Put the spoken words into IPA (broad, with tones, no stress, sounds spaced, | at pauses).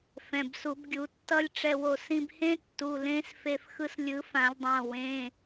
f ɛ̃˩˧˩ b s u˨˩˦ b ɡʲ u˨˩˦ tː ʌ˦˥ lʲ ʈ͡ʂ ɛ˧ w o˧ s ĩ˧ b h ẽ˦˥ tː u˩˧˩ l ẽ˦˥ s f e˧ f x ɯ˧ s lʲ ɯ˨˩˦ f ã˨˩˦ lʲ dˤ ã˩˧˩ w ẽ˩˧˩